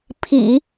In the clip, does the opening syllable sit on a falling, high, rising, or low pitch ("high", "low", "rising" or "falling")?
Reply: low